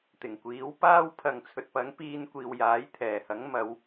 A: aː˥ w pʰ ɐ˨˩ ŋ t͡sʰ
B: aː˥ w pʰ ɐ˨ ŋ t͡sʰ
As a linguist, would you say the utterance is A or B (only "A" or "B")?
B